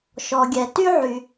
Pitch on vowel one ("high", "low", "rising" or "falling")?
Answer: low